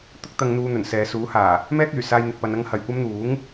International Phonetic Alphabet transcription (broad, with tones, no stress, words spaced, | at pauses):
t̪ʊ˥k̚t̪ɐ˧ŋn̪uː˧ n̪ɵ˨˩nsɛː˨˧suː˨˥ haː˨˩ | mɛː˥k̚yː˨˩saː˧j n̪ɪ˨k̚pɐ˧nɐ˥ŋ hɐ˨jkʷɐ˥mn̪uː˨˥ŋ